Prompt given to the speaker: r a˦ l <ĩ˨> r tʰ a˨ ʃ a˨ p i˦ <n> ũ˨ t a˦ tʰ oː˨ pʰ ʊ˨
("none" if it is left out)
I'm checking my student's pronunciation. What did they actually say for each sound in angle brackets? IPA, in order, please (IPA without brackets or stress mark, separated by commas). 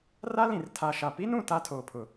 ĩ˨, n